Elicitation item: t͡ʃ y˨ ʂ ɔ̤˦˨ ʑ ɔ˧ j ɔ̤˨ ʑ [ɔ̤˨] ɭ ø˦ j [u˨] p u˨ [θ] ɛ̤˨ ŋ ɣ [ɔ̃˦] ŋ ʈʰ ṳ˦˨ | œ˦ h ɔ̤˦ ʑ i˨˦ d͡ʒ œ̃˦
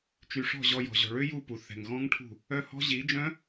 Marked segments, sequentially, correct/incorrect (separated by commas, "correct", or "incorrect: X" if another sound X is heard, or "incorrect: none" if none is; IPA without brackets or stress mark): correct, incorrect: u˦˨, correct, correct